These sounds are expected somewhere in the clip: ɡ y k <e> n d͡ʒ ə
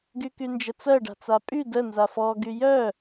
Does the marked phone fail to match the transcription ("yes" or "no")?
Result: yes